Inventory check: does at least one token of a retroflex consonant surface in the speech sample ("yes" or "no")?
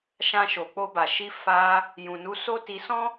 no